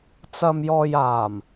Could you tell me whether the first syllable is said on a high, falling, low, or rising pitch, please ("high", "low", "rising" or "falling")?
low